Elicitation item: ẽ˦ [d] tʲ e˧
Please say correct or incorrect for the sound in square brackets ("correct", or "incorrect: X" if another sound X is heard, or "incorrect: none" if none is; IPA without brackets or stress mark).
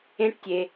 incorrect: ʈ